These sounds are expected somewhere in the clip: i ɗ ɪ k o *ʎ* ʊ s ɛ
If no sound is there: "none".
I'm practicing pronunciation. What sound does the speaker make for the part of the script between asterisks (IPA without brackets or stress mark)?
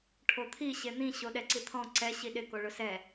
ɭ